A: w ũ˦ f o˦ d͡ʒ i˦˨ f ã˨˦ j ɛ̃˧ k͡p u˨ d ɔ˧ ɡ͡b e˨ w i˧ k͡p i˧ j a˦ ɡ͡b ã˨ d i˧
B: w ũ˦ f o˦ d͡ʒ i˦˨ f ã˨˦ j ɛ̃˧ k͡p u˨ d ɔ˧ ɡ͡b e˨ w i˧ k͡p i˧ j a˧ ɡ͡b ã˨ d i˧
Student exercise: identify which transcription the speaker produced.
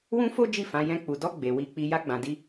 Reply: B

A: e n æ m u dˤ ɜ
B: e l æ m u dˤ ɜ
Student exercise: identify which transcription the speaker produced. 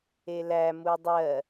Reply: B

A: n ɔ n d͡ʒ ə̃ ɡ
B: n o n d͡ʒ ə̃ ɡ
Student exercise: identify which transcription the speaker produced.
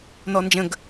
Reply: A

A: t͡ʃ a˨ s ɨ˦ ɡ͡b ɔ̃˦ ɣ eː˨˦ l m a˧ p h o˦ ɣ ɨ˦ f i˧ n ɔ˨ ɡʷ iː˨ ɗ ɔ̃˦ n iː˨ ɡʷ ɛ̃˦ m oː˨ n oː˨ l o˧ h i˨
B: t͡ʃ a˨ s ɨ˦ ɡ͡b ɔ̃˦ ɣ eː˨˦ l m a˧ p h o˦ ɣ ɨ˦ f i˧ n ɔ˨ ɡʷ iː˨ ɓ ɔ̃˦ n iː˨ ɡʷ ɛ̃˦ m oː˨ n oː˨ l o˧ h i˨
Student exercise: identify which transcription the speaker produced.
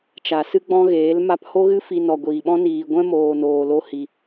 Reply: B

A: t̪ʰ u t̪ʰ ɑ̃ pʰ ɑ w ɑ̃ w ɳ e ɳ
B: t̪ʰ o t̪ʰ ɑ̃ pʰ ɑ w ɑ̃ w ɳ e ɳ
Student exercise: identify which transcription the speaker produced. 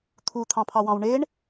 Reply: A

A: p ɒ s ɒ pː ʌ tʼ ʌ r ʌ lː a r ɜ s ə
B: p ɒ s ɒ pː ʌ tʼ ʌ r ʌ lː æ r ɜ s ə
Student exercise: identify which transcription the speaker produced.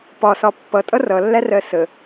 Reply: B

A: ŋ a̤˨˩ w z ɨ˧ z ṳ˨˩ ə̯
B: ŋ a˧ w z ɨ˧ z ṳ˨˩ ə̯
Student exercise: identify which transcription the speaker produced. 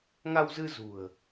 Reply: B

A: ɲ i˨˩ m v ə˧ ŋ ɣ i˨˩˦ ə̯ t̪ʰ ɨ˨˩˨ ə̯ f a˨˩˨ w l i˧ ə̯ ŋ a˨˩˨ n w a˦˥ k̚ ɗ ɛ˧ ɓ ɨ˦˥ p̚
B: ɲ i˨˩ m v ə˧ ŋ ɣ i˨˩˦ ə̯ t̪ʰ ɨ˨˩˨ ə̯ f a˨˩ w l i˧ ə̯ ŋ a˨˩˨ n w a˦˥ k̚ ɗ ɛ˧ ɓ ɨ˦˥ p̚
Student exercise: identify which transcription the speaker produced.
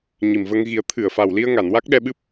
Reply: B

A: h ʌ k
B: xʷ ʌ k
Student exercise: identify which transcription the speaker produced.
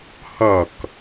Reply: A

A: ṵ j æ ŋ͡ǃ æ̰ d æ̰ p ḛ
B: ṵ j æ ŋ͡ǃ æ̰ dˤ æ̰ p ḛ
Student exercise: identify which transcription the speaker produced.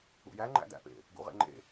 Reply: A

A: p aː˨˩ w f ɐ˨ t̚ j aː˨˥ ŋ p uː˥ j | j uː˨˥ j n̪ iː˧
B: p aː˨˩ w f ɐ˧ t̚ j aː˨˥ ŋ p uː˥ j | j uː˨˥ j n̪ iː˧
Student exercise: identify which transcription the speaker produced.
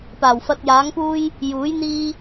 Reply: B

